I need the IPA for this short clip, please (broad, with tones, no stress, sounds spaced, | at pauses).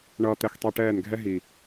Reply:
ɳ ʌː˧ t̪ ɛ˧ x tˤ i˧ ʈ ɛː˦˨ n ɡʱ ɛ˦ ɦ i˨